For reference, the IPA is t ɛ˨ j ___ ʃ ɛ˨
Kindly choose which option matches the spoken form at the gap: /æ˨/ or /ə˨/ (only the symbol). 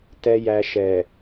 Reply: æ˨